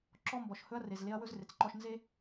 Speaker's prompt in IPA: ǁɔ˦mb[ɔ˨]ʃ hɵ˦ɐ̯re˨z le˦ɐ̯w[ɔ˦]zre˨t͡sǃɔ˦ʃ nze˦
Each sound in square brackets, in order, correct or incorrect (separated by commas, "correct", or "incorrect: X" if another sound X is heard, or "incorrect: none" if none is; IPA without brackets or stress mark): correct, incorrect: ɵ˦